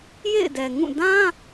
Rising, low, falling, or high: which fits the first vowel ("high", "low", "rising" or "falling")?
falling